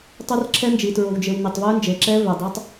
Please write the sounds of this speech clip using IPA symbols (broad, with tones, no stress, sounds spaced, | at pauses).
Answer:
tˤ ɵ˦˥ r ǁʰ ɛ˦˥ n d͡ʒ i˨ t ɹ o˨ w d͡ʒ e˨ w n e˨ tˤ v œ˦˥ n d͡ʒ e˨ ǁ ɛ˦˥ v œ˨ dˤ œ˦˥ tˤ